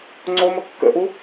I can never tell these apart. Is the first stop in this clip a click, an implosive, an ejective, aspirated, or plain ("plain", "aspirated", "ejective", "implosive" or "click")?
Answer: click